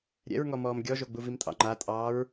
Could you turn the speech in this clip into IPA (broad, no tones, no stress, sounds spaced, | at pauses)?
ɾʲ ɛ̰ ɹ ŋ ɔ m ɔː m ɡʲ ɔ ʒ o ɡ͡b u v i m tʼ ɑ̰ ŋ͡ǃ a tʼ ɑː ɹ